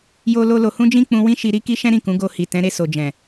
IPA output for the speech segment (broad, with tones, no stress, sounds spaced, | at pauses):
j o˦ l o˦ l o˧ h ũ˦ d͡ʒ ĩ˦ k͡p ũ˧ w ĩ˦ ʃ i˧ ɾ i˦ k i˦ ʃ ɛ̃˦ ɾ ĩ˦˨ k ũ˨˦ ɡ o˧ h i˨ t ɛ̃˨˦ ɾ e˧ s o˨ d͡ʒ ɛ̃˨